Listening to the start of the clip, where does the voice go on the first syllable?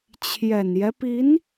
low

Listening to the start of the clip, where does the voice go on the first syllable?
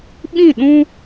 falling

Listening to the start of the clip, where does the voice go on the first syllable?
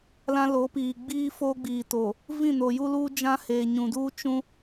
high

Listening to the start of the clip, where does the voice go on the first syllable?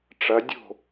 rising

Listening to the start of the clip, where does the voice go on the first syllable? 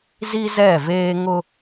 high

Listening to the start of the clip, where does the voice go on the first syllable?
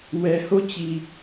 low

